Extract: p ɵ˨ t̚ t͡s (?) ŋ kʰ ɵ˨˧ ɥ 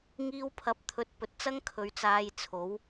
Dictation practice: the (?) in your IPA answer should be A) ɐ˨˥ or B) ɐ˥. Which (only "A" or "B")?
B